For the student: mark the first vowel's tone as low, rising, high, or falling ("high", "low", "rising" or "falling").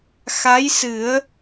rising